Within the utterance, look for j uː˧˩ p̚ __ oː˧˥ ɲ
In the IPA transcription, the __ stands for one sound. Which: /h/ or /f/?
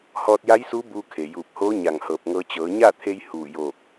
h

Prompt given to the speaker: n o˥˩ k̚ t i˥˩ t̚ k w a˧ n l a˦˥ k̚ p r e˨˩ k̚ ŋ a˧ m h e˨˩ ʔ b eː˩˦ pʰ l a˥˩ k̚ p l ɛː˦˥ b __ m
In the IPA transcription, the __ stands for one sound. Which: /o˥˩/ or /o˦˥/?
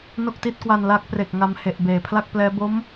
o˦˥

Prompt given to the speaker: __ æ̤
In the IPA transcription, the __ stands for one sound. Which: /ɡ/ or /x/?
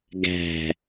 ɡ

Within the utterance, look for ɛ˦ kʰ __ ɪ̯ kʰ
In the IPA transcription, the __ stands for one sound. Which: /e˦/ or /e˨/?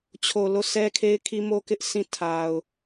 e˦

